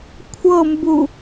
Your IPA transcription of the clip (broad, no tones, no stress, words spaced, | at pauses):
kʷʰɤmbu